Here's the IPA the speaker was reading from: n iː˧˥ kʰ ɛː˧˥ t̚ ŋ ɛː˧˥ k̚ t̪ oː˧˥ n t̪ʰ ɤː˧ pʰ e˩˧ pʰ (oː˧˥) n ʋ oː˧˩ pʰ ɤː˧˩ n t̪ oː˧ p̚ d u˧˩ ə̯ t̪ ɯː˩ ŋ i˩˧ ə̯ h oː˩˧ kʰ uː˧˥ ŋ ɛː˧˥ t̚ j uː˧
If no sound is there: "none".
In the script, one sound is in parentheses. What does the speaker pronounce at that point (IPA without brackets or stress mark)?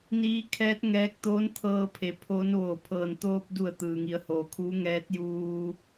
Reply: oː˧˥